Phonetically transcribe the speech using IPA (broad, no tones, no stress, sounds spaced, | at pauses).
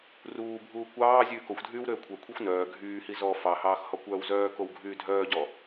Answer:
r uː bʱ uː kʷ ɑː zʲ ʉː k o xʷ dʱ yː w ɾ øː kʷʰ œ kʷʰ i xʷ n œː ɡʱ yː h i z ɔ f ɑ h ɑː x h ɔ kʷ œː w z œː k o w ɡʱ yː dʱ œː ɟ ɔ